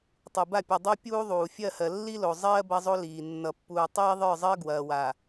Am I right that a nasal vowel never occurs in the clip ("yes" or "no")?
yes